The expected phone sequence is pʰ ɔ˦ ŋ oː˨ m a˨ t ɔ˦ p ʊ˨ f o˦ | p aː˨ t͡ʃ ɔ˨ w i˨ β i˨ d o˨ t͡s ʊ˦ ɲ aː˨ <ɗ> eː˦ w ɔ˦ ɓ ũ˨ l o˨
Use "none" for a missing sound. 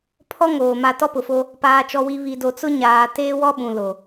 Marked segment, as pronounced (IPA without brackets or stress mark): t